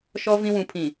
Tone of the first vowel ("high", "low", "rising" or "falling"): high